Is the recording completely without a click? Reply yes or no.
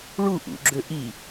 no